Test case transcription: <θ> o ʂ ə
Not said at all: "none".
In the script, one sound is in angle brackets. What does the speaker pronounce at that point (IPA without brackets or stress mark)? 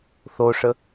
θ